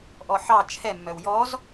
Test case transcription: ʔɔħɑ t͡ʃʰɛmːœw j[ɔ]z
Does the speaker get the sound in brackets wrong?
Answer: no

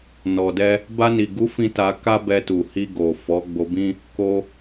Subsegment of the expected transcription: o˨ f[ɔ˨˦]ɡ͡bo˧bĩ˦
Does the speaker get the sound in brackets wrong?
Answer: no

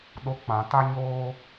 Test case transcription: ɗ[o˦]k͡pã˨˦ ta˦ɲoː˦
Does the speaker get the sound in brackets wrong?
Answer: no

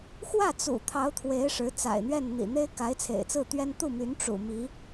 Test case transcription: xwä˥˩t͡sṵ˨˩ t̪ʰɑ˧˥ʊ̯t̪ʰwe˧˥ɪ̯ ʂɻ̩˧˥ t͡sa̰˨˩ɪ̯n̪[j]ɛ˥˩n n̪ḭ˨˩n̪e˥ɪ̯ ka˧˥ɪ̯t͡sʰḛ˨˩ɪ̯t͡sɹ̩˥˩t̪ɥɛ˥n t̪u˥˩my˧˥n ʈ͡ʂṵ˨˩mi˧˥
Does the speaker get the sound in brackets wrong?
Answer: yes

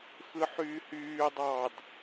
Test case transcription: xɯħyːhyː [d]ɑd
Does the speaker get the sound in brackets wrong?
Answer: yes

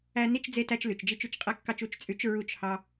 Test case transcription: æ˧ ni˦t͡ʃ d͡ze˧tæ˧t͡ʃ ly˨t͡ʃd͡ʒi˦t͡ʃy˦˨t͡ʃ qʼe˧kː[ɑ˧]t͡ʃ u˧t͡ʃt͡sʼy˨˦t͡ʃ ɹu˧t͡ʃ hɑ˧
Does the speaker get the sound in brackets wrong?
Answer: no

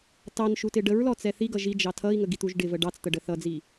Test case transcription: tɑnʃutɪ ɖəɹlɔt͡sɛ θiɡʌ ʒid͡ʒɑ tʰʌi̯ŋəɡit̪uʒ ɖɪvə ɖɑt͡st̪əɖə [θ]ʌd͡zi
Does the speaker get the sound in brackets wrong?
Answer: no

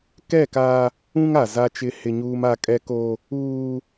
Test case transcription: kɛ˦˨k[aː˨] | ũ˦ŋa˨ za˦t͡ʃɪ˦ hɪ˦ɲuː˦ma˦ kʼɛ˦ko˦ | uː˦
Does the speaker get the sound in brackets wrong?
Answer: yes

